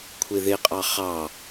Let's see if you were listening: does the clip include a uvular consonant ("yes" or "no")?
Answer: yes